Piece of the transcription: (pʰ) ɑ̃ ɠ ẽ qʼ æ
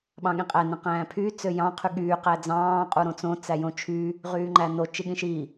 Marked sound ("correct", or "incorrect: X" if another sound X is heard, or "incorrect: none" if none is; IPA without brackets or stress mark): incorrect: ɓ